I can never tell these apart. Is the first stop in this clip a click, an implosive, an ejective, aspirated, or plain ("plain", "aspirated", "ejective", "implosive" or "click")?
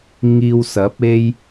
plain